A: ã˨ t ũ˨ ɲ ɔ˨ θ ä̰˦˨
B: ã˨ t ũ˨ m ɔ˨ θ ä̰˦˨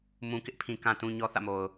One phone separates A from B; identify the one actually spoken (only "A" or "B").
A